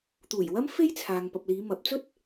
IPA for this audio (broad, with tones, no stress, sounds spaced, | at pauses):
t̪ uː˨˩ j w ɐ˥ m f e˥ j t͡sʰ aː˨ ŋ p ɐ˨ p̚ l iː˨˧ m ɐ˨˥ p̚ t͡s ɵ˥ t̚